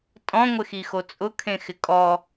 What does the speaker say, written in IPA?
tʼɔ̃ŋʷɪxixo t͡sʼʊkʰẽxɪ kʼɔ

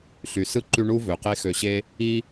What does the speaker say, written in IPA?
ɬy˩sɯ˥ ǃy˦ɳu˥ vø˩qe˥ xø˨ɕe˦ | i˥

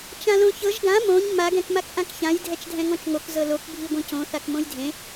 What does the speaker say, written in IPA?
t͡ʃãlõçɤʒ ɡã mõɲ ma ɡɛ̃kmakʔãkçãj dʱɛt͡ʃdʱɛ̃ŋɔ̃t͡ʃŋok zɤlok bʱiɡʷĩcõ θakmõjdʱẽ

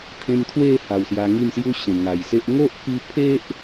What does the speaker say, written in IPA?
t̪ʰẽ˧mt̪ʰwe˥˧ ha˨˩wsja˧ ŋi˥˧msju˦ɕẽ˨˩ ŋa˨˩jse˦ʔ ŋo˦ʔpi˧pʰe˦ʔ

